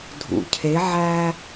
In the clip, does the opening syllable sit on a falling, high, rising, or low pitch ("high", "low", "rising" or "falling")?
low